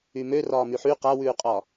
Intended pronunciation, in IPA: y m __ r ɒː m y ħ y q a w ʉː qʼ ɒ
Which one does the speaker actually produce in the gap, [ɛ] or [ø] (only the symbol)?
ø